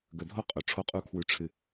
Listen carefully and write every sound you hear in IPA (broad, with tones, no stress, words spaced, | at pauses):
ɡɵ˨dʱo˦ qʼɵ˨ʈ͡ʂʰo˦qʼu˦kʰwʉ˧ ʈ͡ʂʰɨ˨